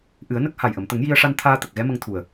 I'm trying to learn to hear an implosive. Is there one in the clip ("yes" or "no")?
no